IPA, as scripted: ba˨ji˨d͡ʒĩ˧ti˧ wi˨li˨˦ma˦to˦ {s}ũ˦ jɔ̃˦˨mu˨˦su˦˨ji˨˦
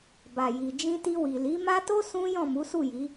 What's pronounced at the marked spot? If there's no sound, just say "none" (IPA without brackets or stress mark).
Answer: s